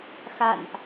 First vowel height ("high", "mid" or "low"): low